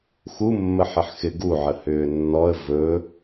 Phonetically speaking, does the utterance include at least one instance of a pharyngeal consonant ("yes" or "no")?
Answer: yes